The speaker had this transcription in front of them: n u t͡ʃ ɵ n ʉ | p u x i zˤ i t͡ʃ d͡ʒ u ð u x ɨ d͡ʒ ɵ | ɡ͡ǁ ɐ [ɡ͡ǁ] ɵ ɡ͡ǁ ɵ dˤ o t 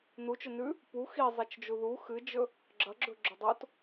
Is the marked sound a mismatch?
no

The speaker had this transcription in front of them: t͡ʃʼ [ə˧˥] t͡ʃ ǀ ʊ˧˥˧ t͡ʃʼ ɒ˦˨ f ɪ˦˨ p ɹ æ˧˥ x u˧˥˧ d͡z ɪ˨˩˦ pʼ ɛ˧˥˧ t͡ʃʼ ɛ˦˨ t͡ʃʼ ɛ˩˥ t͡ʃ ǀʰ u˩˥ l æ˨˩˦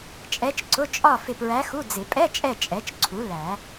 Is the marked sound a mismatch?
yes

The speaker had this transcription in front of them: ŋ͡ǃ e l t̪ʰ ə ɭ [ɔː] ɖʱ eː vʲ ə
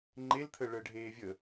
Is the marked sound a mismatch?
yes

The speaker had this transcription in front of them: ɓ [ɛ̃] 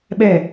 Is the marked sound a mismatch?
yes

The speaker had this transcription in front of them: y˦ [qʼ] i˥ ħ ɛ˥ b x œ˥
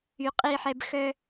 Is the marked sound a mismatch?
no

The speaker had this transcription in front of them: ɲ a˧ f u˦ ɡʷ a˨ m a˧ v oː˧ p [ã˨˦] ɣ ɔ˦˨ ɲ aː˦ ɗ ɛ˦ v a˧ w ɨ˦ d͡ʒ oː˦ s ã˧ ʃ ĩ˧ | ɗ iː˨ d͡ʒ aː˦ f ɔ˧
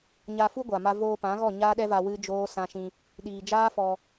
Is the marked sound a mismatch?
no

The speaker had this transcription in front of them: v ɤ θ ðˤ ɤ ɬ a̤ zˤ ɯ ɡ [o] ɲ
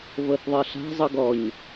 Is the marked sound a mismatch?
yes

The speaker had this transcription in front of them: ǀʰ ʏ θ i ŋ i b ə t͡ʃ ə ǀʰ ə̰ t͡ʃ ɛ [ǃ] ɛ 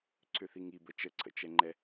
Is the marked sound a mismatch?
yes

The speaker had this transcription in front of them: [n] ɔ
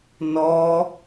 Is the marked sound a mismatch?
no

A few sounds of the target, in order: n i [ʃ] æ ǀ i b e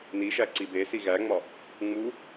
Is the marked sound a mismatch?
no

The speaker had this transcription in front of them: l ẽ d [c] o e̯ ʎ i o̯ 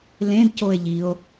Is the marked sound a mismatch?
no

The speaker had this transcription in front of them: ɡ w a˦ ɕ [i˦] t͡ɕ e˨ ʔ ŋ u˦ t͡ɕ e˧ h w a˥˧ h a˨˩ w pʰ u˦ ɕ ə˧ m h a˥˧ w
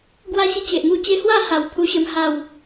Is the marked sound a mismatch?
no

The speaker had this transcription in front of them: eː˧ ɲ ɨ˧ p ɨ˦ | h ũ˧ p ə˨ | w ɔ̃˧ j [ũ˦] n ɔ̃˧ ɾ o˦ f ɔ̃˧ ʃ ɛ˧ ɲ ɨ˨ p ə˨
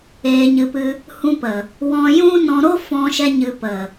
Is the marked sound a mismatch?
no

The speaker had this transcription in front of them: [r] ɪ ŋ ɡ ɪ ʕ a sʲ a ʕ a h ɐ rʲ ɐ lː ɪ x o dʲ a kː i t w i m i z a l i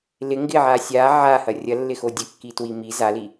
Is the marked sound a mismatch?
yes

